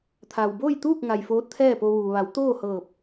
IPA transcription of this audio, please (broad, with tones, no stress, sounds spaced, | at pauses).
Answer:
t̪ʰ aː˩ w b oː˥˨ j t̪ uː˥˨ k̚ ŋ a˩ j f oː˧˥ t̚ t̪ʰ ɛː˥˨ p o˧ ʋ uː˩ ʋ a˩˧ w t̪ oː˥˨ h ɤː˧˩ p̚